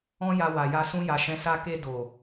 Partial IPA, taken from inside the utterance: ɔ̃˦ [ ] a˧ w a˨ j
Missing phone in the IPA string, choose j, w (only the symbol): j